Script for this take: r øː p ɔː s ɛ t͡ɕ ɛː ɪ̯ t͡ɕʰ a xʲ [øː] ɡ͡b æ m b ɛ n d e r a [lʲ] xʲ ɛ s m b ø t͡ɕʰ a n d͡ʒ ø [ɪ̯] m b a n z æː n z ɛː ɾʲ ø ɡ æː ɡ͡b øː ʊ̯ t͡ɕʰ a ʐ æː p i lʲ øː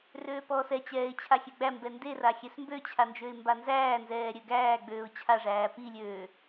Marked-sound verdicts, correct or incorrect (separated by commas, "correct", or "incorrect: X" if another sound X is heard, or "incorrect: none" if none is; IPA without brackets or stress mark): incorrect: ø, incorrect: none, correct